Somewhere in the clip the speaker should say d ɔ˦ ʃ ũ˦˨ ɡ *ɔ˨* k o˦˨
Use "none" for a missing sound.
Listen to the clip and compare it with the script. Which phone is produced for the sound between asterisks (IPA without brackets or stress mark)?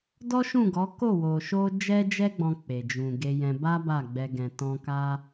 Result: ɔ˨˦